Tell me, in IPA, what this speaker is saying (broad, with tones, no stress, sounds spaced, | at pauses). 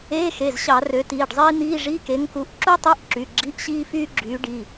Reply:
eː˧˥˧ x e˩˧˩ z ɕ ɑ˧˩˧ r ø˨˥ t iː˩˧˩ ɖ zˤ iː˥ n̪ iː˧˥˧ ʐ i˧˥˧ k e˨˥ ŋ k u˨˥ ʔ ǁ u˥ tˤ y˧˥˧ ʔ ǁ y˩˧˩ ɡ͡ǁ i˧˥˧ ʔ ɕ iː˥ f yː˥ ɡ͡ǁ yː˨˥ ɖ i˩˧˩